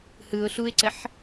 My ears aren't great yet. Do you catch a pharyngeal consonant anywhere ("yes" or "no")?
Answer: yes